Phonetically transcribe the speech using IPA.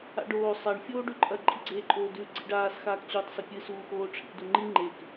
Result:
a̰ ɖ oː sˤ a ɳ fʲ oː ɖ ʉ ǃʼ ɐ ǃʼ i ɡ͡ǀ eː ǃʼ oː d ʉ ɡ͡ǀ ḭ ɖ aː s x aː k t͡ɕ uː tˤ s ɐ pʲ ɨ s uː x oː ʈ͡ʂʰ ḭ d u ŋ͡ǃ i ŋ͡ǃ e k

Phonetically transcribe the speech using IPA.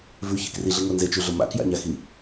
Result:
v ʉ ç ḛ k r i ɮ i ŋ ʊ n z e t͡ʃ ʉ ɮ ʊ m a̰ k j a̰ ɲ a x i

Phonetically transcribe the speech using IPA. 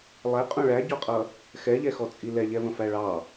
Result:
lˠ ɛ qʼ ũ ɭ æ ɟ ɔ qʼ ʌ | x ɛ ʎ ɛ x ɔ t͡sʼ i l ɛ ʎ ɛ v ə̃ f æ ɭ ɑ

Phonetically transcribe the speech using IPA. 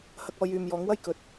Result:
h ɐ˧ k̚ ɔː˧ j yː˨ m j ɔː˨˥ ŋ w ɐ˥ j k ɵ˨ t̚

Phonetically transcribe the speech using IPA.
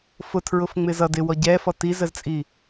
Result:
f ʊ tʰ ɹ ʊ f ŋ͡m ɪ z ʌ d ɪ w ɔ ɟ ɛ f ɔ t i z ɜ z t͡sʼ i

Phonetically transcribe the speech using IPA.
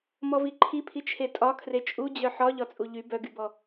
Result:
m ɔ v i ǃʰ i pʰ i t͡ʃʰ e tʼ ɒ kʰ r e t͡ʃʼ u d͡ʑ œ ħ ɒ ʎ ɒ t͡sʼ u ʎ y b œ ɡ y b ɔ

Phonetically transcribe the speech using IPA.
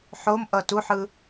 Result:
ħ o m ʔ ʌ t u ħ ɯ

